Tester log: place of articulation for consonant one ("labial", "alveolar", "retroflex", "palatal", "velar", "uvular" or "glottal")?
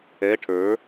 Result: retroflex